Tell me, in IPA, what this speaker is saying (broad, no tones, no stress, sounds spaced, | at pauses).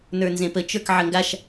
n ə˞ n z ẽ p ə t͡ʃ ə˞ k ʕ ə ŋ ɡ a ʃ